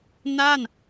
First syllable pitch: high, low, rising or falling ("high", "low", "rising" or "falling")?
falling